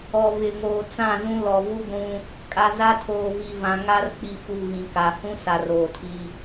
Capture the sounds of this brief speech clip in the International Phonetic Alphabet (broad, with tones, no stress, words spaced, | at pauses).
ɔ˨vɪ˨ŋoː˨ t͡sã˦˨zũ˦ lɔ˨vu˦ɡʷũ˦ | kʼa˨za˦tʰoː˨ vi˨vã˨ ŋa˦r k͡pi˨fu˨ ɣĩ˨ka˨ hũ˦sa˨r oː˨tʰi˦